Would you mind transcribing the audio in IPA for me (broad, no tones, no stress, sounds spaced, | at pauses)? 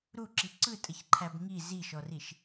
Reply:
ɾ u ǁ i ǀ ɯ tʼ ə ç ǃʰ æ b ŋ i z i ʃ ɔ r i ʃ